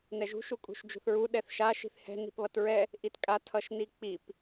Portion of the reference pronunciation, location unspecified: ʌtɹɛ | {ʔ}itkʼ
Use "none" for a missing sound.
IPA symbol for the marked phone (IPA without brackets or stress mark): ʔ